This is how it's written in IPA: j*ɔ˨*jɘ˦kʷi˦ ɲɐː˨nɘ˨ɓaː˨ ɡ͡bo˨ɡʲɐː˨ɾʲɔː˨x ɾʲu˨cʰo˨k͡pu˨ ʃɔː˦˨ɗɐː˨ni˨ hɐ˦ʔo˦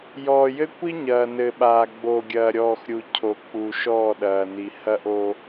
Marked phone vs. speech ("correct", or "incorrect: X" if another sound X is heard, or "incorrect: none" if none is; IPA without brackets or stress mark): incorrect: ɔː˨